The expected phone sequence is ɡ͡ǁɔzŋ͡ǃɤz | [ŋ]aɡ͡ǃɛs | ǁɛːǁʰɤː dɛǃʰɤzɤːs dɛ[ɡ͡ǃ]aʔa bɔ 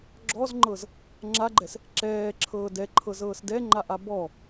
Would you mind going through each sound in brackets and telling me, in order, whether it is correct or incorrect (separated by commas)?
incorrect, incorrect